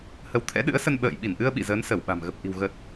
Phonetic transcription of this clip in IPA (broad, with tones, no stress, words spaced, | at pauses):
hə˨˦wt̪ʰɛ̰˧˥ɗɨ̰˧˥ə̯sə˧n ɓə̰ː˧˨j ɓi˧˩nʔɨ˧ə̯ ɓḭ˧˨zəː˨˦nsə˧˩w ɓa̤˨˩mɣə˨˩p̚ ʔi̤˨˩wɣə˨˩t̚